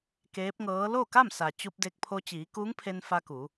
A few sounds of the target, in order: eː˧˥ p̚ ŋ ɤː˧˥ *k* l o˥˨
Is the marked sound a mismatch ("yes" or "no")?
yes